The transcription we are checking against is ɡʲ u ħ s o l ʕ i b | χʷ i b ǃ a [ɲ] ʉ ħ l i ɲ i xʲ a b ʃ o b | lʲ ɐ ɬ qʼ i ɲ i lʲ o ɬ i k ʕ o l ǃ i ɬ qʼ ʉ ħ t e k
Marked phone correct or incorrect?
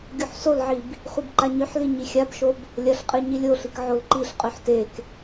correct